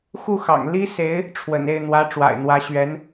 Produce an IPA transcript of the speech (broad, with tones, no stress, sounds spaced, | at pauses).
x u˥˩ x ɑ̰˨˩ ŋ l i˥ s e˧˥ ɪ̯ | ʈ͡ʂʰ w ə̰˨˩ n e˥˩ ɪ̯ n̪ w ä˧˥ ʈ͡ʂ w a̰˨˩ ɪ̯ n̪ w ä˧˥ ɕ ɥ ɛ˧˥ n